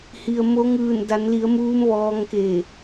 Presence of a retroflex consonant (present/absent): absent